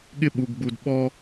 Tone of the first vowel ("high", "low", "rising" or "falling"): high